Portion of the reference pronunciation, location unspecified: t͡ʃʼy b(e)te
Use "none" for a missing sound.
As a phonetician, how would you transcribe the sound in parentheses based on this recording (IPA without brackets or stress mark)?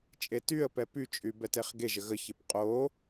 ɛ